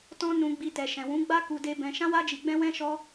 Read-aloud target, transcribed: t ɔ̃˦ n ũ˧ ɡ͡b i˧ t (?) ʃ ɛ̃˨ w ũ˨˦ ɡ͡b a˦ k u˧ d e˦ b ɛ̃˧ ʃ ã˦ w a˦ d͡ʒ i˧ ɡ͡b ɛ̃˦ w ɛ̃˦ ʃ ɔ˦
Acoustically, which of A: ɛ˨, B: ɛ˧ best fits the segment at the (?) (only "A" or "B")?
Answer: A